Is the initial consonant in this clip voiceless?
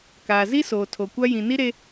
yes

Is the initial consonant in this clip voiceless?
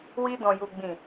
no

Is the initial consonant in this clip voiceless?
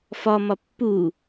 yes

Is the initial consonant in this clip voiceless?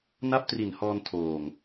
no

